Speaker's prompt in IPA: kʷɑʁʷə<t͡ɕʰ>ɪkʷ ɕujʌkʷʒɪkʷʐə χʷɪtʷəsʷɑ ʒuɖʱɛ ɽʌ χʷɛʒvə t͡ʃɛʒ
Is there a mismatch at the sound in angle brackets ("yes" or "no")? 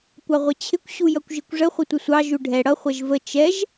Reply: no